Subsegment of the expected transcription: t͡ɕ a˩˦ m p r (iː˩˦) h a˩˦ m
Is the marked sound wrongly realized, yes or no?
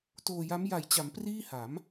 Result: yes